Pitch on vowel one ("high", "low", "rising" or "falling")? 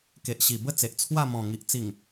low